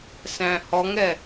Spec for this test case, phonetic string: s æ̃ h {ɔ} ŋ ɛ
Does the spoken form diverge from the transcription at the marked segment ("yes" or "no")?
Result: no